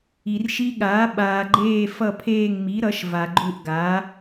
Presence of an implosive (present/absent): present